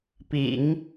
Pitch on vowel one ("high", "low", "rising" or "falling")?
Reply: low